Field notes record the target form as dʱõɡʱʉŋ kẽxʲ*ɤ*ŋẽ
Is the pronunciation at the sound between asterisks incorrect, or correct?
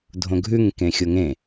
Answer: incorrect: o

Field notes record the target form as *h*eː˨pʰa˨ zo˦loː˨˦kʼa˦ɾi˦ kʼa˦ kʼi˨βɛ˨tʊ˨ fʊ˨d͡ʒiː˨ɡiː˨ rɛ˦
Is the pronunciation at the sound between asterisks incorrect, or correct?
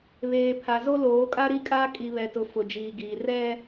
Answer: incorrect: β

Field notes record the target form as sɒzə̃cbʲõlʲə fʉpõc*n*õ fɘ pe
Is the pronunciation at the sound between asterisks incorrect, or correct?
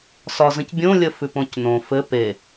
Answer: correct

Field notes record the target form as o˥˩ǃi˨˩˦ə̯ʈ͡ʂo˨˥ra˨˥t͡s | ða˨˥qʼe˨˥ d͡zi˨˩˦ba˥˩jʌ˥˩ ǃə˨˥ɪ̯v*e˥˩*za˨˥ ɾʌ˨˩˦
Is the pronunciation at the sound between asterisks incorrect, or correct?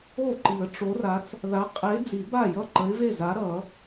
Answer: correct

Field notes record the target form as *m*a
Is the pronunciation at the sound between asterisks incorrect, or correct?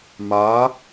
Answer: correct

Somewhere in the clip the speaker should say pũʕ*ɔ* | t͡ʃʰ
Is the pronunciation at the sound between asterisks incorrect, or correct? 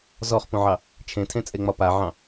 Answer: incorrect: ɑ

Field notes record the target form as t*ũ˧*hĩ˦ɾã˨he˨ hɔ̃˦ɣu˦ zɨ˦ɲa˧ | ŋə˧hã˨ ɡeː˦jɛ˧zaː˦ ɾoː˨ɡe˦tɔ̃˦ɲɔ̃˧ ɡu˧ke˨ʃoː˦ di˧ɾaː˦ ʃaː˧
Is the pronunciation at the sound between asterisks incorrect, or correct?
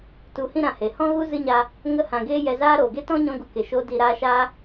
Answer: incorrect: u˧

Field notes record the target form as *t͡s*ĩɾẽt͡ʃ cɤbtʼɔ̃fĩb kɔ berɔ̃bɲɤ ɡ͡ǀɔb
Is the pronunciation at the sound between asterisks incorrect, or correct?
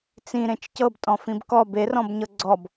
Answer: correct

